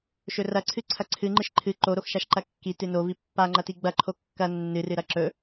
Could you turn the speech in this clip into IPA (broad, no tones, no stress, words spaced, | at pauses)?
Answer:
ʃɵrɐǀʰɨ ǀʰɐǀʰɨŋ͡ǃɨʃ ǃʰɨ ǃoɾoxʃaʃ ǃɐkːi tɨno vipːaŋ͡ǃɐti ɡ͡bɐǃʰo kːɐ nːɨrɨɾɐ ǁɵ